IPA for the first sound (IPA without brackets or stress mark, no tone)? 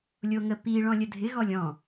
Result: lʲ